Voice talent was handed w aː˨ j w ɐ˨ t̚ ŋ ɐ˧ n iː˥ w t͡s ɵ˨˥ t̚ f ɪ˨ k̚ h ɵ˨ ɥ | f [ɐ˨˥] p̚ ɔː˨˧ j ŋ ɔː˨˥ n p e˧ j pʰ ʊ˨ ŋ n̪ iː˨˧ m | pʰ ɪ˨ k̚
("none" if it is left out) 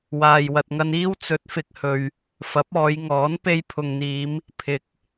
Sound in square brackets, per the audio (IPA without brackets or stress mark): ɐ˨˥